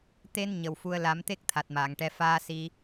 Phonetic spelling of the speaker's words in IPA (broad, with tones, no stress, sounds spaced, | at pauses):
t̪ e˧ n ɲ ə˨˩ w f u˧ ə̯ l a˨˩˦ m t̪ e˦˥ k̚ t̪ʰ a˨˩ t̚ m aː˨˩˨ ŋ ʈ ɛ˧ f aː˧ s i˧